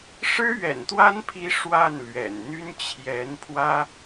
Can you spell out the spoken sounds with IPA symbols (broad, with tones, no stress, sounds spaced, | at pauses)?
ʂ ɻ̩˥ ɥ ɛ̰˨˩ n t̪ w a˥ n pʰ i˧˥ ʂ w a˥˩ n l ɥ ɛ̰˨˩ n n̪ y˥ n t͡ɕʰ j ɛ˧˥ n pʰ w ä˥